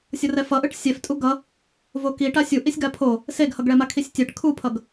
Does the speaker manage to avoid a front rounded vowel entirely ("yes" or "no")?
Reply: yes